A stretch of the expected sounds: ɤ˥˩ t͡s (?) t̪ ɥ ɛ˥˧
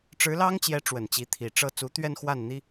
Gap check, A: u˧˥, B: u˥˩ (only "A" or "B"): A